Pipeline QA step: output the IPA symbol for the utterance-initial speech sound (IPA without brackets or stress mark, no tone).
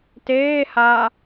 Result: t